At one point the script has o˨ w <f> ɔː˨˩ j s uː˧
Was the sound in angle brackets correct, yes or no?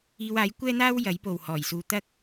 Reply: no